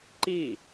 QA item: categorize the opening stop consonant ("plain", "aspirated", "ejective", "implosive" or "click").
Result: click